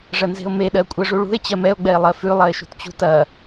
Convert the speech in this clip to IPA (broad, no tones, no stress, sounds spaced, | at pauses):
ʐ ɐ n z e̤ o̯ m e ɗ ɜ kʷʼ ɜ ʐ u ɭ ṳ e̯ t͡ɕ ɜ m ɛ o̯ ɡ͡b ɛ e̯ lˠ ɜ f ʉ lˠ ɐ e̯ ʃ ṳ t t͡ɕ ṳ t ɐ